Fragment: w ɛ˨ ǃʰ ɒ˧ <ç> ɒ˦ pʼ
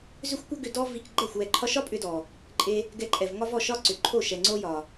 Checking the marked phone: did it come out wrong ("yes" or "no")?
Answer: yes